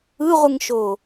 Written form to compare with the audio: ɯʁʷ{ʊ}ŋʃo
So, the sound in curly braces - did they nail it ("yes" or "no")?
no